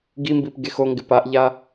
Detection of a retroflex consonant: absent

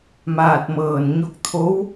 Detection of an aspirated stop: present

